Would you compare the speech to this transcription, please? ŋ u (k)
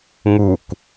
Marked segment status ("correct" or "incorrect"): correct